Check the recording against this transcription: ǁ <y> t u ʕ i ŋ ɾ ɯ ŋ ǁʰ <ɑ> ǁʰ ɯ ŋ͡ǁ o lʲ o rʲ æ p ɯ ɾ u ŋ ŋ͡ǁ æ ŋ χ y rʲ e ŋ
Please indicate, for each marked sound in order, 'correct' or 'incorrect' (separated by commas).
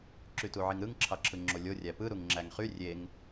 correct, correct